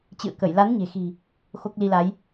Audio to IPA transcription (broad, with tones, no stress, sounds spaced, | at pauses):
t͡ɕ ɨ̰˧˨ ə̯ k ə˧˩ j l a˨˦ n ɲ e̤˨˩ x i̤˨˩ | x o˦˥ k̚ l i˧ l a˨˦ j